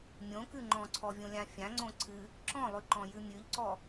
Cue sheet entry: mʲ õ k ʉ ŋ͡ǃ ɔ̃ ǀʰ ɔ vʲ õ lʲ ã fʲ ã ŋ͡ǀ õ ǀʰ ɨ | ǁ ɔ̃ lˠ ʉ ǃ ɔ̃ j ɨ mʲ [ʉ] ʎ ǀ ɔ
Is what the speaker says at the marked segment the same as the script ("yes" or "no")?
yes